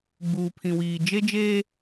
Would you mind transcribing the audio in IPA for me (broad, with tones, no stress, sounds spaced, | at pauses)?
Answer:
ɡ͡b uː˨ pʰ ĩ˨ w iː˨ d͡ʒ e˦ d͡ʒ eː˦